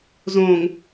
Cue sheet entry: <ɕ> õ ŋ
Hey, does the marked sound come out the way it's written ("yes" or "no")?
no